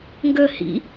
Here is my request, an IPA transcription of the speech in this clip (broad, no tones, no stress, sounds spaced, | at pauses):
ŋ ɡ ə h ḭ